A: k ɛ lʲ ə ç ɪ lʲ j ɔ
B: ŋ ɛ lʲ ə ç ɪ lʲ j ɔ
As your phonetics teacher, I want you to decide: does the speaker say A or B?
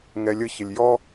B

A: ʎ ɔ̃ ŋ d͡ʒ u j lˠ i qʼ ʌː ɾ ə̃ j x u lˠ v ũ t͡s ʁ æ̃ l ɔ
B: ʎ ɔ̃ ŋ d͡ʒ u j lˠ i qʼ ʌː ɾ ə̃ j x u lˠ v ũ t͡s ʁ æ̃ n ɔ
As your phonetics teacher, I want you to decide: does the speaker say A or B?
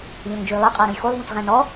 B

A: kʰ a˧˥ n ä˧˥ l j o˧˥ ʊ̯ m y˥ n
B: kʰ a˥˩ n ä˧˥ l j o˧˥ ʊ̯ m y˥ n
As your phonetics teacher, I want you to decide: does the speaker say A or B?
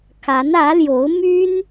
A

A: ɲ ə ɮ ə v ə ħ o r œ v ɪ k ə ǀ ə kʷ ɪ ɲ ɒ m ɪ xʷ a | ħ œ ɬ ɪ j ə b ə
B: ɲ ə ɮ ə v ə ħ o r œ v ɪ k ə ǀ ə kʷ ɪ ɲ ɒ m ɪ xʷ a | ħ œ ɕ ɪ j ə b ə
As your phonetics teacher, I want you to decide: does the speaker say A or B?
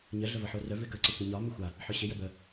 B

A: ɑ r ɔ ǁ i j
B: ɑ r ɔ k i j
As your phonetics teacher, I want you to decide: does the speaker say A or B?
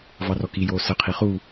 B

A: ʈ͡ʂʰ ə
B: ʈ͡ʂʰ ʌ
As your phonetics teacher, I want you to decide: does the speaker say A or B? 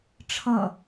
B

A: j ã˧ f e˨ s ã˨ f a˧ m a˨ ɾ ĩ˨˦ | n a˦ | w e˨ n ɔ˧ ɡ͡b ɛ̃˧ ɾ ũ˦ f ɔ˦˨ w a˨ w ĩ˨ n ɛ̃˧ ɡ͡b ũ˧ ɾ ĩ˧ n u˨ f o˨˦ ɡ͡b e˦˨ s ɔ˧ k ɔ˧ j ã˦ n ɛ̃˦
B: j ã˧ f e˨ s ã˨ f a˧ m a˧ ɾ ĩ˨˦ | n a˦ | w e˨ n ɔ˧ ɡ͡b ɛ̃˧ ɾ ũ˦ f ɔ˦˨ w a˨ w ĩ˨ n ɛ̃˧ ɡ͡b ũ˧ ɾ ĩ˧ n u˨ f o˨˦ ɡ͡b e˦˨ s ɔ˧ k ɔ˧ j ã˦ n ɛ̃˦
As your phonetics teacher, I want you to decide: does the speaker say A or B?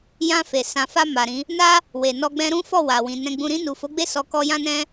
A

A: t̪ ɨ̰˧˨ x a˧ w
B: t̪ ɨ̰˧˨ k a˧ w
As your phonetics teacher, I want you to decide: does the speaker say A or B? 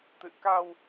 B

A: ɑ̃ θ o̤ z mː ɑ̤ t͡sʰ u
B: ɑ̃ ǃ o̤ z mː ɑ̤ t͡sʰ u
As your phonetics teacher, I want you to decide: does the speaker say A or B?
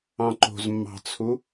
B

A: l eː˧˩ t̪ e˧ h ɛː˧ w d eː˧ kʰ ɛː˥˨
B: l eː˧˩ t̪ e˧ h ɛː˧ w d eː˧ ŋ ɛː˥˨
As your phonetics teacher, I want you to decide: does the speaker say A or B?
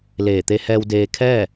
A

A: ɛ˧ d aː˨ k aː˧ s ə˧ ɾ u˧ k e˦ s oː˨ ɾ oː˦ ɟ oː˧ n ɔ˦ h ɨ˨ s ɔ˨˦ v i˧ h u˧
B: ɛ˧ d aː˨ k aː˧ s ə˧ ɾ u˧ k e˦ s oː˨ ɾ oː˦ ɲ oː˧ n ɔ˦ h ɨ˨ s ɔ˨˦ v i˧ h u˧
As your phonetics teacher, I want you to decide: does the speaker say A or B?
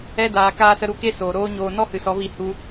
B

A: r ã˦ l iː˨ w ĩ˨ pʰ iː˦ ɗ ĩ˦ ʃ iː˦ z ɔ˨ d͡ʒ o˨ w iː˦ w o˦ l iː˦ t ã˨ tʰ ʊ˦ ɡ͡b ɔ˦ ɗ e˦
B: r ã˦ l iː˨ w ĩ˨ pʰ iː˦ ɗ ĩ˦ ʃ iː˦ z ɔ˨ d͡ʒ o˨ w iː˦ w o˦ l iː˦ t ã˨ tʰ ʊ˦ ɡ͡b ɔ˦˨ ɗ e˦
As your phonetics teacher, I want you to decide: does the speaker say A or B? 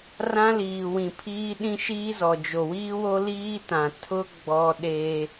A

